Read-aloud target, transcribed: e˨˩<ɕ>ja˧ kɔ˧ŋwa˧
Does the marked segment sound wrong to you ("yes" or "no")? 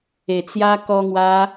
yes